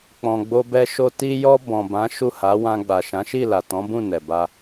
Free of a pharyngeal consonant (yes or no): yes